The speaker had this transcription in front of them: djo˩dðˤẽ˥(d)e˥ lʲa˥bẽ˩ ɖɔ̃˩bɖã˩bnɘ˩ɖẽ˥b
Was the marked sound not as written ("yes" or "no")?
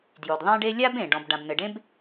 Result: yes